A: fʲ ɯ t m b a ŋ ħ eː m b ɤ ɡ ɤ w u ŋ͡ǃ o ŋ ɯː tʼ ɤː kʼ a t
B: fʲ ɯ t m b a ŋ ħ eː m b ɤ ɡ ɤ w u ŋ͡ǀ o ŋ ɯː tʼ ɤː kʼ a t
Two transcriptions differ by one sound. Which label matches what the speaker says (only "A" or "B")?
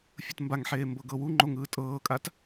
A